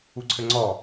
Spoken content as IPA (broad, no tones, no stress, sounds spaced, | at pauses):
u ǀʰ ɘ ŋ͡ǀ ɔ